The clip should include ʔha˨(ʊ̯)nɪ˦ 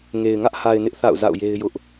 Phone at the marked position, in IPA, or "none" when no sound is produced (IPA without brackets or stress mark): ɪ̯